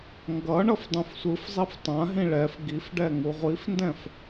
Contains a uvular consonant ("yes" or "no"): yes